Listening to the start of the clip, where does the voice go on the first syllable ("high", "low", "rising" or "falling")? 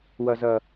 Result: low